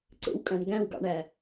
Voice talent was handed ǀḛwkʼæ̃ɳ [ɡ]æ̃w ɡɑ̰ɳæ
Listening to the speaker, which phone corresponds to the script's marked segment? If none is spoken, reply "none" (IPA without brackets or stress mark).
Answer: ɡ